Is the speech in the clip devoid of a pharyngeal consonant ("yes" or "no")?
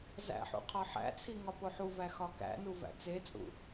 no